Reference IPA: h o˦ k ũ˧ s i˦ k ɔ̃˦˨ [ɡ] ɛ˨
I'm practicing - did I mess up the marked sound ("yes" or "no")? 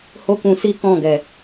no